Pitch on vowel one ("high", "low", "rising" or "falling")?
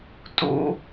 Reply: high